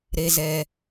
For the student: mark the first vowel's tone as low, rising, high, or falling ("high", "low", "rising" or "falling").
low